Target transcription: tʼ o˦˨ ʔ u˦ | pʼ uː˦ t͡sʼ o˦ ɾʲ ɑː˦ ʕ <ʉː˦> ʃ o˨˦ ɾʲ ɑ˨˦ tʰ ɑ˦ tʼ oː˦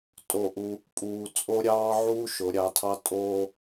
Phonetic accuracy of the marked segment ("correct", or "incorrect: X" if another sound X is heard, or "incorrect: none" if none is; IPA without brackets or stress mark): incorrect: uː˦